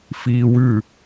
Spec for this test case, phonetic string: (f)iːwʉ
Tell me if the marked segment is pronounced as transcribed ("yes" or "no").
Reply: yes